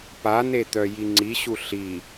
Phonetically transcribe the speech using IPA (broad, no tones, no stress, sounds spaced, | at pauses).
p a n e t̪ œ j i ŋ͡ǀ i ɕ u ɬ i